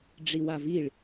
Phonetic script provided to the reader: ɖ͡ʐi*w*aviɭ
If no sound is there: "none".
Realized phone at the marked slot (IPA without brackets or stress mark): w